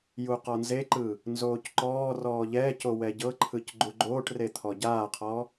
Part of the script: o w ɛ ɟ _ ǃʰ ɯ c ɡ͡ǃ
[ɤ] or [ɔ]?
ɤ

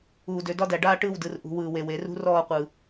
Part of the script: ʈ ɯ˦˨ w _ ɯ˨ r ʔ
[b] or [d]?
d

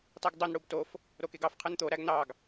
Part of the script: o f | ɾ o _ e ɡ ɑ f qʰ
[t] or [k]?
k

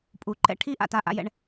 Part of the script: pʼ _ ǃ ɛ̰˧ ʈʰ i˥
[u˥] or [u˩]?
u˩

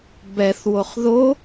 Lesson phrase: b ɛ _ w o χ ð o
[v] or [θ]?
θ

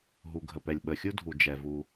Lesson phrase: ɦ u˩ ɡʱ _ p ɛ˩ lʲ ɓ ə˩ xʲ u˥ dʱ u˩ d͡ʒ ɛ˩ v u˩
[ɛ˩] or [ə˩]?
ə˩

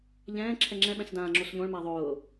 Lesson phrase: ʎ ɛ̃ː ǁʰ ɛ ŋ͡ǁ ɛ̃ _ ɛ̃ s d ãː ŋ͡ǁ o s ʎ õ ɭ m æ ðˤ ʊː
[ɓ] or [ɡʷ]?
ɓ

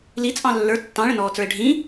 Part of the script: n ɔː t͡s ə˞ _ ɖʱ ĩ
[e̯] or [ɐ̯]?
e̯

